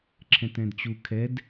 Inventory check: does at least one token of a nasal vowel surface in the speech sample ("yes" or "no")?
yes